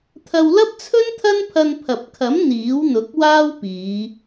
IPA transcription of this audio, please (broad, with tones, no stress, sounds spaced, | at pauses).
t̪ʰ ɐ˧ w l ɐ˥ p̚ t͡sʰ ɵ˥ n t̪ʰ ɐ˥ n pʰ ɐ˧ n pʰ ɐ˨ p̚ kʰ ɐ˨˥ m n̪ iː˨˥ w n̪ ʊ˨˥ k̚ w aː˥ w p iː˨˧